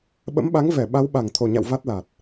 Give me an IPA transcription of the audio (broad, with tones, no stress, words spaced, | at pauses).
ɓə̰˧˥mɓa˨˦ŋ vɛ˧˩ ɓa˨˦wɓa˧˩ŋt̪ʰo˨˩ɲa̰˧˨w va˦˥t̚la˨˩t̚